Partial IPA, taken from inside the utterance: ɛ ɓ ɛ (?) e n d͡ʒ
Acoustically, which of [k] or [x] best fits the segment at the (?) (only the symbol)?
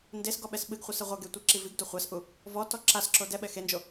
x